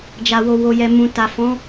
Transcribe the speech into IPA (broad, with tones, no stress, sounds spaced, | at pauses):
d͡ʒ a˨ w o˨ w o˨ j ɛ˨ m ũ˨ t a˨ f ɔ̃˨˦